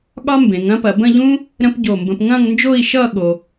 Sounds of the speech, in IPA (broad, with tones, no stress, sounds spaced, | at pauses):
ɠ ɒ˥ m b ẽ˩˧ ŋ ɐ̃˥ p ɐ˩˧ b ə̃˥˧ ʎ ũ˥ | ɾ ə̃˥ p ɟ o˧˩ m b ə̃˧ p ŋ ɐ̃˥˧ ŋ n d͡ʒ o˥˧ i̯ ʃ ʌ˥˧ ɠ o˧